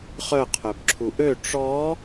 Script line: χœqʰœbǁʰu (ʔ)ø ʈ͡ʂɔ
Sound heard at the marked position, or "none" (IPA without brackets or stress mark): ʔ